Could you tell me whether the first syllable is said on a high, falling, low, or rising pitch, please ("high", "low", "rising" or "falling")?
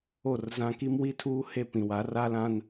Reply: falling